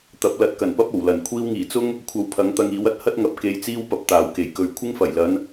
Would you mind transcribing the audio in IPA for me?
t̪ ɐ˨˥ p̚ l ɐ˨˥ t̚ k ɐ˨˩ n p ɐ˥ p̚ o˨˩ w l ɐ˨˩ n kʷʰ iː˧ w ŋ iː˨˩ t͡s ʊ˥ ŋ | kʷʰ ɐ˧ w pʰ ɐ˨˥ ŋ t̪ ɐ˧ ŋ iː˨˥ w ɐ˥ t̚ h ɐ˥ t̚ ŋ ɐ˨˥ p̚ k e˧ j t͡s iː˥ w p ɐ˨ p̚ t̪ aː˨˩ w k e˨˩ j k ɵ˨ ɥ kʷʰ ɪ˥ ŋ f ɐ˨˩ j l ɐ˨˧ n

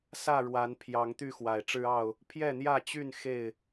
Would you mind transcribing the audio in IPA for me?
s ä˥˨ ɻ w a˨˦ n pʰ j ɑ˨˦ ŋ t̪ y˥˨ x w a˨˩ ɪ̯ ʈ͡ʂ ɻ̩˦ ɑ˥˨ ʊ̯ | pʰ j ɛ˥˨ n̪ j ä˥˨ t͡ɕ y˥˨ n x e˥˨ ɪ̯

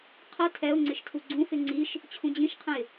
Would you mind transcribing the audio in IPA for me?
qʰ ʌ tʰ ɛ ʊ̯ ŋ͡ǀ ɪ ʃ tʰ u ɡ͡ǀ ũ f ɪ ŋ͡ǀ i ʃ | t͡ɕʰ ũ d͡ʑ ĩ ʃ qʰ ə̃ ɪ̯

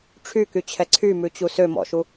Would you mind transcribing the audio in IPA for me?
ʈ͡ʂʰ y k y t͡ɕʰ ɛ ǀʰ y m ʉ t͡ɕ u s ø m ɔ̰ ʃ u

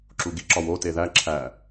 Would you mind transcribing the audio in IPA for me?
ǁ u ɡ i ǁ ɒ w o t e ð æ ǁʰ æ

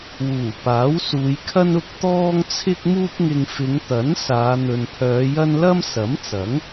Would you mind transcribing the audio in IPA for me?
w uː˨˩ p aː˨˥ w s uː˨˧ j kʰ ɐ˥ n ʊ˥ k̚ t̪ ɔː˥ ŋ t͡sʰ ɪ˥ k̚ m uː˥ p̚ ŋ ɪ˧ ŋ f ɪ˨˧ ŋ t̪ ɐ˨˥ n s aː˨˧ n̪ ɵ˨ n pʰ œː˨˧ j ɐ˥ n l ɐ˥ m s ɐ˨˥ m t͡s ɐ˨˥ ŋ

